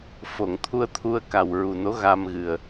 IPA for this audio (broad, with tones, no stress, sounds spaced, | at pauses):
f o˨˩˨ ŋ t̪ʰ u˧ ə̯ t̪ʰ u˧ ə̯ k a˨˩ w ɹ u˨˩ n o˧˥ ɣ a˧ m ɣ ɨ˨˩ ə̯